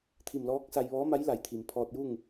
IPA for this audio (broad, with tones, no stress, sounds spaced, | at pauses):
t̪ʰ i˧˩ m l ɔː˧˥ k̚ s a˧ j ʋ ɔː˧˥ m a˧˥ j l a˩ j t̪ʰ i˩ m pʰ ɔː˧ t̚ j u˥˨ ŋ